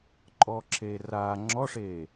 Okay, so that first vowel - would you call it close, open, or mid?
mid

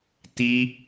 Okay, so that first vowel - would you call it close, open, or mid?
close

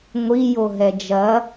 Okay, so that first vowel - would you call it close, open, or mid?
close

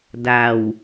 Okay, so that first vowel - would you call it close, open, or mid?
open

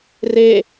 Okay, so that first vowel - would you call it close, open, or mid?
mid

